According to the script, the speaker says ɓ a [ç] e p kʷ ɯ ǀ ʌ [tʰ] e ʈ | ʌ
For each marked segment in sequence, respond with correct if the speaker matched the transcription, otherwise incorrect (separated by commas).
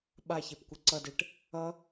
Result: correct, incorrect